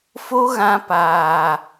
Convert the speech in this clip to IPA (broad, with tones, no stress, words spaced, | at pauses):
fo˦ɣã˧paː˨